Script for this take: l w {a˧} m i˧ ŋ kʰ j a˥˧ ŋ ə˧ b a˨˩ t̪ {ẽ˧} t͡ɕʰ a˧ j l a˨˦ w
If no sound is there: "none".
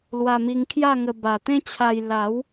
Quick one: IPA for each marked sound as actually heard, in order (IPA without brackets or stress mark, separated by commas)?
a˧, ẽ˦